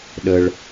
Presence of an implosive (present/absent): present